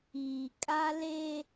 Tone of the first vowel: low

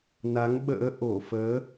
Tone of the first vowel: rising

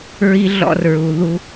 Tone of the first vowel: high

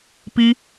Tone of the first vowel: high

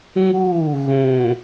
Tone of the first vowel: falling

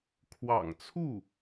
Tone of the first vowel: low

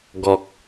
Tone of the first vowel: low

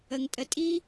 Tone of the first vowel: low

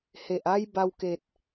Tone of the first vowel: low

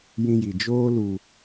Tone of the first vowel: high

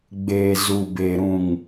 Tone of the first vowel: low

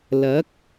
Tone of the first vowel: rising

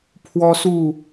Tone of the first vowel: high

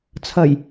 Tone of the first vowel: low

